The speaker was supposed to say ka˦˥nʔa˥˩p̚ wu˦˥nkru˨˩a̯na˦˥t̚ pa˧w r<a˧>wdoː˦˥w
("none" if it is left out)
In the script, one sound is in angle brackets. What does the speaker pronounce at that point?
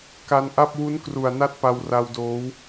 a˧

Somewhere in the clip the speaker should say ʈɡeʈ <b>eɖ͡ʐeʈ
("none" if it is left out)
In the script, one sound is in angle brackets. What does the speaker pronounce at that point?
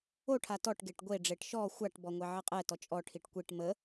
ɡʷ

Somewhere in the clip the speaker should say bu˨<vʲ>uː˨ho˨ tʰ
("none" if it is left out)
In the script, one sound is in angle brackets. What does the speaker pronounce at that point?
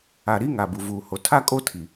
v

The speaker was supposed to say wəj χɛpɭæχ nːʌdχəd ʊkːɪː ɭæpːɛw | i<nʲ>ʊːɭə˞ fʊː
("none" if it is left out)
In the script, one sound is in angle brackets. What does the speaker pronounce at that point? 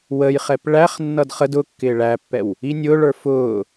nʲ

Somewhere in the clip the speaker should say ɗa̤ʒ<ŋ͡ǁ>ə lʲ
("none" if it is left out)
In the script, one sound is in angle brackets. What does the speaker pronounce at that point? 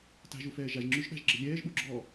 ɡ͡ǁ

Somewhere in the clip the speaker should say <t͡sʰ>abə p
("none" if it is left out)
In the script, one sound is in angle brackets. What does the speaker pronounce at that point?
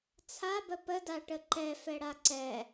t͡sʰ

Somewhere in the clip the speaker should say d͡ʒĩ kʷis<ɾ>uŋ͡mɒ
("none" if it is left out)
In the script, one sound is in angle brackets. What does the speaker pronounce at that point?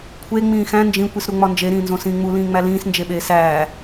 ɾ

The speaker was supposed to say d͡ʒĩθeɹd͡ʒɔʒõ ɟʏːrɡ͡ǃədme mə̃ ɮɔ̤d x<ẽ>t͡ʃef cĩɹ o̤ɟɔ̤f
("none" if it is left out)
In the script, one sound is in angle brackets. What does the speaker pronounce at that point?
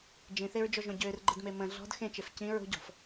ẽ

